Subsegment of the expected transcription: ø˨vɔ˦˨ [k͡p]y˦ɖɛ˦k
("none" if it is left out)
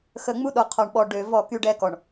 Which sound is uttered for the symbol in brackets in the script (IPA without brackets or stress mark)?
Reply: k